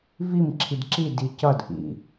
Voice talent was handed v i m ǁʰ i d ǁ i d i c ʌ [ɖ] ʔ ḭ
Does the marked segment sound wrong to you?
yes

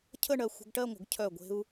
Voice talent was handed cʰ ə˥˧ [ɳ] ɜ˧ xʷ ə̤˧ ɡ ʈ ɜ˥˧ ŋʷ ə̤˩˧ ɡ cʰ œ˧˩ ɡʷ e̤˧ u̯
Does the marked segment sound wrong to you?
no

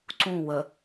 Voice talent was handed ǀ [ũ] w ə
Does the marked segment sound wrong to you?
no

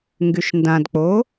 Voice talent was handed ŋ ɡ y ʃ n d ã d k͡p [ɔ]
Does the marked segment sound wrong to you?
yes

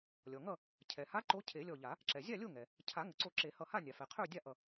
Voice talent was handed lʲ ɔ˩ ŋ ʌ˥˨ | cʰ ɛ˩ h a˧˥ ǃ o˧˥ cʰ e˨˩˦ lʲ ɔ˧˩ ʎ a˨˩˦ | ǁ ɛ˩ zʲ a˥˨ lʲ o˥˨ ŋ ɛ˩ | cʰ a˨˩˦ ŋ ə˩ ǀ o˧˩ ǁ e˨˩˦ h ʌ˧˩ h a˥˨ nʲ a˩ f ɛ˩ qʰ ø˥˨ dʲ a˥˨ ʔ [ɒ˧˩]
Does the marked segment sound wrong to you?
yes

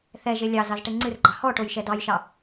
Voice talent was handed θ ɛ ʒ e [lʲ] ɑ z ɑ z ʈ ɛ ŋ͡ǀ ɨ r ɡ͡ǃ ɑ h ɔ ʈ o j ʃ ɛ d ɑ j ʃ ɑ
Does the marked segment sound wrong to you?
no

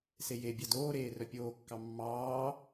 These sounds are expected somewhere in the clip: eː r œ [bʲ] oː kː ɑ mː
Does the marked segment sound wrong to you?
yes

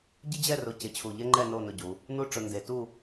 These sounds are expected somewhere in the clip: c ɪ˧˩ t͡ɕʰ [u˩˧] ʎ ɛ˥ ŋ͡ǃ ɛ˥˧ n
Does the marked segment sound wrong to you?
yes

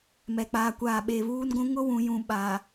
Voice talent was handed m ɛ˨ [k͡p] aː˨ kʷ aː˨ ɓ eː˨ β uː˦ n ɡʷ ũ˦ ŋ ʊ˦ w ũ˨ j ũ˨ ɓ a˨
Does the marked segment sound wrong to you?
no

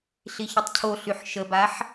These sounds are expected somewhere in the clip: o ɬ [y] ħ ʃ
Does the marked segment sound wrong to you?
no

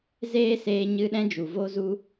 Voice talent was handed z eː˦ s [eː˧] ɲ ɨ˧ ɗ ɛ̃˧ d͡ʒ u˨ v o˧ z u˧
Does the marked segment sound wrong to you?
no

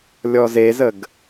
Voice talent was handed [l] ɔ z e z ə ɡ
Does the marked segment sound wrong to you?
yes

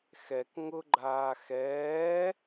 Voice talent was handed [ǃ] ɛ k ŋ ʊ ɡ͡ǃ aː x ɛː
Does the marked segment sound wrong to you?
yes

